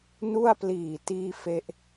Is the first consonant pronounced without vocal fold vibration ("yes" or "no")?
no